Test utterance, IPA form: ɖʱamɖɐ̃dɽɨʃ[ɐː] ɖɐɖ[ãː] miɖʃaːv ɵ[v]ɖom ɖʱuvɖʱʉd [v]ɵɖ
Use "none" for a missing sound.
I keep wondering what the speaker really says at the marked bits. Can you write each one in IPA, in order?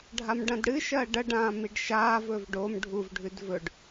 ɐː, ãː, v, v

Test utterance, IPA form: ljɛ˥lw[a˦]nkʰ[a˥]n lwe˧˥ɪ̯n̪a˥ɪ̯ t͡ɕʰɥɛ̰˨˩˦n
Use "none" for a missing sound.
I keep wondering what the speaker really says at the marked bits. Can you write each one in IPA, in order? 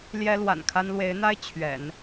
a̰˨˩, a˥

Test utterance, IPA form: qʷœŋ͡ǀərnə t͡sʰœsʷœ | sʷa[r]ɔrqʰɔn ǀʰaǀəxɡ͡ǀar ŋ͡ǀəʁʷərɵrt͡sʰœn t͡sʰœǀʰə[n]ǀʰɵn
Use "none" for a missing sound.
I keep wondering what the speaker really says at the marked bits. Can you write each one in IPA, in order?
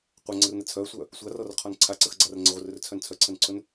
r, n

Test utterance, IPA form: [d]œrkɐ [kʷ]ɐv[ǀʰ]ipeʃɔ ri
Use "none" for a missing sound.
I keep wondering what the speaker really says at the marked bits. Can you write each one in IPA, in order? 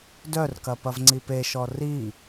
d, p, ŋ͡ǀ

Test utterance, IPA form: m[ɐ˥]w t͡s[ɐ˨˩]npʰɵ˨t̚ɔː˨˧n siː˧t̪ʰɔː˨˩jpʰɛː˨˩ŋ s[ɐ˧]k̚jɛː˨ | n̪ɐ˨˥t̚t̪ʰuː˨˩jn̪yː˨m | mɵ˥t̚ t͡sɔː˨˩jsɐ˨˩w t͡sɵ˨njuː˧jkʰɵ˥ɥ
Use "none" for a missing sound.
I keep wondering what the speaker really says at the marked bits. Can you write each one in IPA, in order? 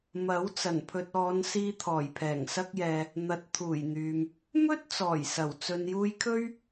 ɐ˨˥, ɐ˨˩, ɐ˧

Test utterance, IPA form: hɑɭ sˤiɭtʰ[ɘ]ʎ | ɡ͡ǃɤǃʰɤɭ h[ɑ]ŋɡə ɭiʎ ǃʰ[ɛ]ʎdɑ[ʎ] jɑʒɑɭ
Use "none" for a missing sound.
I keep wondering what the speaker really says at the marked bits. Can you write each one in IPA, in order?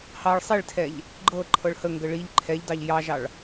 ɛ, ə, ɛ, ʎ

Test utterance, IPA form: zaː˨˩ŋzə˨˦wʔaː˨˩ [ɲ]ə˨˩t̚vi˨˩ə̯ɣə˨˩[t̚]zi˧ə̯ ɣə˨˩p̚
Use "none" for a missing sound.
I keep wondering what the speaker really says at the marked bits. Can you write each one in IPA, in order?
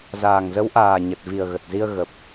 ɲ, t̚

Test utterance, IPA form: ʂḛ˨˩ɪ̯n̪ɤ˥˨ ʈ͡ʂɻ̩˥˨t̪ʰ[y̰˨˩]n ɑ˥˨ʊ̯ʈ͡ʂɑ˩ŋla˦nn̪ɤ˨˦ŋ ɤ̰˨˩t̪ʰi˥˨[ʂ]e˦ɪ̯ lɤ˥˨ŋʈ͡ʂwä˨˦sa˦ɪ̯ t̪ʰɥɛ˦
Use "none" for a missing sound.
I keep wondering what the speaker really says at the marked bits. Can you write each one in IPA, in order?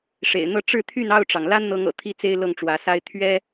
y˥˨, t͡s

